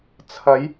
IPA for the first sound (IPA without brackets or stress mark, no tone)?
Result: t͡sʰ